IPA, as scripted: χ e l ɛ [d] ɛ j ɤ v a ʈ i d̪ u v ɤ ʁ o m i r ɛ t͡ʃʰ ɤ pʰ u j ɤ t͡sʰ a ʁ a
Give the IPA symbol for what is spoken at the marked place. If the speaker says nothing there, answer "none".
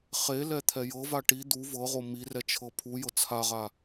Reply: t̪ʰ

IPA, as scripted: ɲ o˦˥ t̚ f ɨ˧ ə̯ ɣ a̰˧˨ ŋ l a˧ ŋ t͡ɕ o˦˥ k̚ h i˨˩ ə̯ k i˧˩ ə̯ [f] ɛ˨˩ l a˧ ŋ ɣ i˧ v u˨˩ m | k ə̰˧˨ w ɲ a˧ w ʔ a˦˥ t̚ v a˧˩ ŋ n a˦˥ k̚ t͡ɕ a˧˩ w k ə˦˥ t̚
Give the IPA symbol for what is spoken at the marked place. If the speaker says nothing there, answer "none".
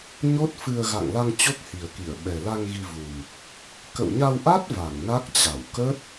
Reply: ɓ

